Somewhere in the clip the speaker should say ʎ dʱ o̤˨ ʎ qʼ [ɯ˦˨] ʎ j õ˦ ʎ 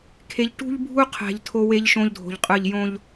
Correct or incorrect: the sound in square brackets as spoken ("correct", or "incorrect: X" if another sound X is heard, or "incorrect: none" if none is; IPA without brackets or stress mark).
correct